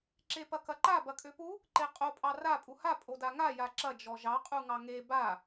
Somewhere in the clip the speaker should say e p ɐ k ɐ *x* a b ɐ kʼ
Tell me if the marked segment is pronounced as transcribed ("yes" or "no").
no